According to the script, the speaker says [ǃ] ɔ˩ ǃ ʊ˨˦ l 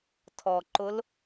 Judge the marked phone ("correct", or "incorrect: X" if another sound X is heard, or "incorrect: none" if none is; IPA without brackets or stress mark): incorrect: tʰ